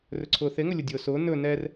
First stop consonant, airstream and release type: click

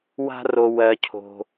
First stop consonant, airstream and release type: aspirated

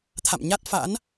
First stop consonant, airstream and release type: aspirated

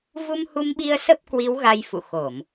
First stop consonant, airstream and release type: implosive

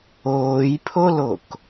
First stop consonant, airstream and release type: aspirated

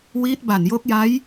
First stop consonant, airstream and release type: plain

